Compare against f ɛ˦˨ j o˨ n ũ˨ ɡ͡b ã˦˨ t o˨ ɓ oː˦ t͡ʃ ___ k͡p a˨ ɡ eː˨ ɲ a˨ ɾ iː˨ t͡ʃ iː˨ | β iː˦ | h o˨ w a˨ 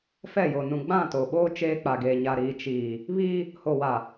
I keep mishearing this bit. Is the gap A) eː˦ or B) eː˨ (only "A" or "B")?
A